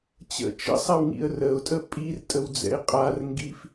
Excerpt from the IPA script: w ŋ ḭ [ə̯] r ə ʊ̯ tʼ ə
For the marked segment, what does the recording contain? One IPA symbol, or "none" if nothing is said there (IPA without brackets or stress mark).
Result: ə̯